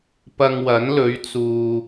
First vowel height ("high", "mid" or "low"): low